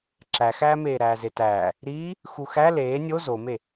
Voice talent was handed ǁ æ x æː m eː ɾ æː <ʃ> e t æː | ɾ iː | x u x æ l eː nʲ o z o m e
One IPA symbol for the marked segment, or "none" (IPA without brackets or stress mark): z